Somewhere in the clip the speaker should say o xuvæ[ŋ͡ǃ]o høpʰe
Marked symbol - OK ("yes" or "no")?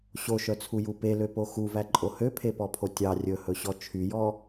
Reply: no